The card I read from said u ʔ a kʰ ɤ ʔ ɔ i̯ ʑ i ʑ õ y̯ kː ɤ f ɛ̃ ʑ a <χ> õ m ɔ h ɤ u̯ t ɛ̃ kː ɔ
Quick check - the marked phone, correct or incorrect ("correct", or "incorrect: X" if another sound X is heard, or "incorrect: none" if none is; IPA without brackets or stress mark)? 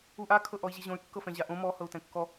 incorrect: ʔ